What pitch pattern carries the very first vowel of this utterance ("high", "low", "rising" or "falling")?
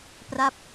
falling